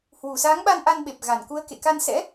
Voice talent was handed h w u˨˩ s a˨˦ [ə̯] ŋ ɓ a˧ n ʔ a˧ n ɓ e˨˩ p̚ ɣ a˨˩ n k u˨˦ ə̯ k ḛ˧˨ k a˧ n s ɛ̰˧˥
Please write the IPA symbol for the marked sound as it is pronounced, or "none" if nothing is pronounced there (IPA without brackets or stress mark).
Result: none